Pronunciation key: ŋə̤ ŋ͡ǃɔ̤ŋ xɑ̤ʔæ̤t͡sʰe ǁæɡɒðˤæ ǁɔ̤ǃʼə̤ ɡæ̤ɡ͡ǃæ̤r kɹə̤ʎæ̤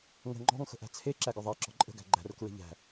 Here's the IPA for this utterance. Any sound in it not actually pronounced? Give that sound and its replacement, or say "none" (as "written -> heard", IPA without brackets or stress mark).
ɑ̤ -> ə̤